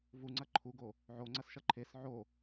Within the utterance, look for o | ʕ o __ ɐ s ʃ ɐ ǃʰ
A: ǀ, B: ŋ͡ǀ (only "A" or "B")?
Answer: B